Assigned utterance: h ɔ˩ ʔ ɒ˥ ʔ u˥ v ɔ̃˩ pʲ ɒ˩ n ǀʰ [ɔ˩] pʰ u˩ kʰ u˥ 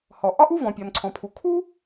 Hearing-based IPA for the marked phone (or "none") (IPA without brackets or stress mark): ɔ̃˩